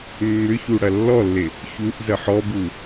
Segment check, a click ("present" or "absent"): absent